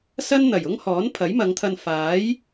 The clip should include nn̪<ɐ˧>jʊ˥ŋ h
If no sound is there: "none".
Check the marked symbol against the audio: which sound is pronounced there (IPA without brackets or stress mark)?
ɐ˨˩